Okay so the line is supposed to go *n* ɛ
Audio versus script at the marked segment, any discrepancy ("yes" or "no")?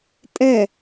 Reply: yes